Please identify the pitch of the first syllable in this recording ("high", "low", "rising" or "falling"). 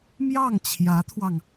falling